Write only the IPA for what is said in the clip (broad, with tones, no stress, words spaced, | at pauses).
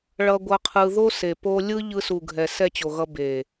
ɭʌ˧ɡʷʌ˧qʰɯ˧ ðo˦ se˨po˦ lʲɯ˦ ʎɯ˧su˨ɡʱɛ˨ sɛ˦˨t͡ɕo˨ɣʌ˧ be˨